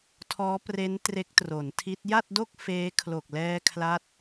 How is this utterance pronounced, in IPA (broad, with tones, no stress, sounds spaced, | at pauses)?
tʰ ɔː˦˥ p r e˦˥ n t r e˦˥ k̚ t r o˩˦ n tʰ i˦˥ t̚ j a˥˩ t̚ d o˥˩ k̚ f eː˦˥ kʰ l o˨˩ k̚ l ɛː˧ kʰ l a˦˥ t̚